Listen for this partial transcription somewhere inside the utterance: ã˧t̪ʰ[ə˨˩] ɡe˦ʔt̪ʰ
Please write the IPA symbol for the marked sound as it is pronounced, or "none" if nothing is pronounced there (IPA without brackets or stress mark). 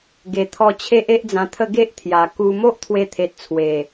ə˥˧